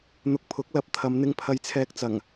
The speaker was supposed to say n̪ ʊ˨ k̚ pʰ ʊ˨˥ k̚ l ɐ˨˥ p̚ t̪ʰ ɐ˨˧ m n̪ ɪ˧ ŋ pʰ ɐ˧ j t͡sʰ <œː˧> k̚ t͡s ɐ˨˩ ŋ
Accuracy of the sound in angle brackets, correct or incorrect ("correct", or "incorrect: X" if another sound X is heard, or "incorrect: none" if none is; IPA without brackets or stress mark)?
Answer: incorrect: ɛː˧